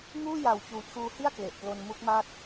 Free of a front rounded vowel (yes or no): yes